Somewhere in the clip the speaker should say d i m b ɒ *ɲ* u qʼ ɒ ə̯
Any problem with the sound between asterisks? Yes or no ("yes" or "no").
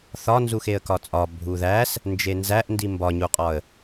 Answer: no